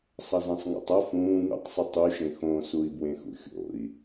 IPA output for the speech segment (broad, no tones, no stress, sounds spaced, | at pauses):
sˤ ʌ z ẽ sˤ ŋ o̰ tˤ ʌ f ũː ŋ ṵ tˤ sˤ ɘ tˤ y ʃ ẽ x õ s u i̯ b w ẽ x ṵ xʲ o̰ i̯